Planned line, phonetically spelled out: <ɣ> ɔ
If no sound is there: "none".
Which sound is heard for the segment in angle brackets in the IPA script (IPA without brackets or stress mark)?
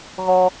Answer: ɣ